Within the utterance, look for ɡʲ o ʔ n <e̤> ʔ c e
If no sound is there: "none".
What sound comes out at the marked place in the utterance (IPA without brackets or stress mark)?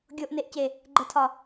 e